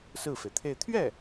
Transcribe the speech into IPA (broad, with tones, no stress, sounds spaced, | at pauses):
s ɹ̩˥˩ f e˩ ɪ̯ t̪ʰ e˥˧ ɪ̯ t̪ʰ ɥ ɛ˥˩